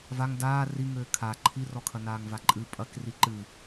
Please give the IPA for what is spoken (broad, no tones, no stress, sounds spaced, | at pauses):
v a ŋ d aː r i ŋ ɘː kʰ a ǃʰ i r ɔ kʰ ɐ n aː ŋ v a ǃʼ ɨ pʼ ɐ k r i ǃ ɨ